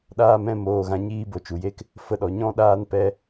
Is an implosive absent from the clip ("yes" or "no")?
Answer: no